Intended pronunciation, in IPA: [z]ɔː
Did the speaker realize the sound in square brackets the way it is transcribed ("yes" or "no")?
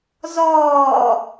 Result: yes